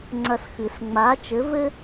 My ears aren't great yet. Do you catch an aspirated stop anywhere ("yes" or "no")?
no